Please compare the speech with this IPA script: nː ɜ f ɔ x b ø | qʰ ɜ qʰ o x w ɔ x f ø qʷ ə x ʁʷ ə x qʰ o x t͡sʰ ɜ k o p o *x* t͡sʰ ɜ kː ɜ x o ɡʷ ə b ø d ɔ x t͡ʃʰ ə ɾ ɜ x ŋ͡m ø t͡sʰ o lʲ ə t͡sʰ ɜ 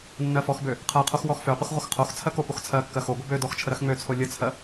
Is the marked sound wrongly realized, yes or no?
no